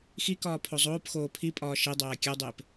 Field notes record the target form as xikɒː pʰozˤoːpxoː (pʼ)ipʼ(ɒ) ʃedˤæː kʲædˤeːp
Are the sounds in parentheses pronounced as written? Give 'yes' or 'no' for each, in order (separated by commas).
no, no